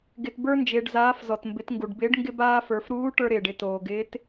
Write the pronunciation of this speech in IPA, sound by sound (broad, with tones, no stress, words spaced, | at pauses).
ɡɪ˩tbə˞˧nd͡ʒɪː˩ɖzaː˩˧f zɔ˩tmbɪ˩˧tŋɡu˩ɖbɪː˧˥ɖ ŋɡɪ˧baː˧ fə˞˩˧fɾuː˧˥ʈə˞˧ɾɪː˩ɖ ɪ˧toː˩ɡɪː˧˥t